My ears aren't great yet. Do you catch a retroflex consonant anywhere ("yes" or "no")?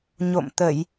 no